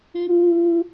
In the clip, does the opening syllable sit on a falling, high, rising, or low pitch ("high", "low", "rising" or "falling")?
high